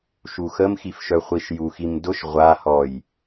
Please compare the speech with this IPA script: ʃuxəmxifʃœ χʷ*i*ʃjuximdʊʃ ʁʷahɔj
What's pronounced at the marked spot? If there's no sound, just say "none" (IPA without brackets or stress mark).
i